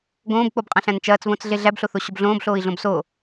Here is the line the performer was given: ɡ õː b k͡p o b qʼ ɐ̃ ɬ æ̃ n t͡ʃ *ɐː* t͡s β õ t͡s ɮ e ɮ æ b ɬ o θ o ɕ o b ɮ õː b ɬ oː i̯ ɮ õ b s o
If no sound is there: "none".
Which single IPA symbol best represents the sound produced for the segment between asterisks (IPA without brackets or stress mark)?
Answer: ɐː